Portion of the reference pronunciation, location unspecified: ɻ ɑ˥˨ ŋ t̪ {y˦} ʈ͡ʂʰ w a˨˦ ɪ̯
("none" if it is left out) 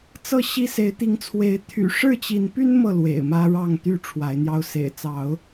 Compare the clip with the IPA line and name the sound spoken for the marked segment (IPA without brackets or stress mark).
y˥˨